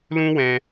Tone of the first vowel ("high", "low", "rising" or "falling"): high